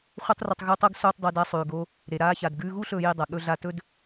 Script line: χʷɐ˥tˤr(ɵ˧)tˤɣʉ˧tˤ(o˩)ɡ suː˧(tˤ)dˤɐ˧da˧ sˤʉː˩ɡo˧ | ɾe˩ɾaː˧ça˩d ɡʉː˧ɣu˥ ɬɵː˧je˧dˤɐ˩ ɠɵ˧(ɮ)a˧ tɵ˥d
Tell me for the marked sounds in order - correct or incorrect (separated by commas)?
correct, incorrect, correct, correct